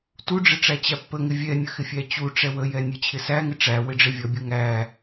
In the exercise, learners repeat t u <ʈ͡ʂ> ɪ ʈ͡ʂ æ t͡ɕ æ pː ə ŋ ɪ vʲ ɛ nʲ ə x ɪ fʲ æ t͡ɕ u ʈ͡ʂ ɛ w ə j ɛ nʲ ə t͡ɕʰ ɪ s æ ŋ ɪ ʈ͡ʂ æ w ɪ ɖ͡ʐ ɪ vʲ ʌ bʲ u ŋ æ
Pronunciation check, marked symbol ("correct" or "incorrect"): incorrect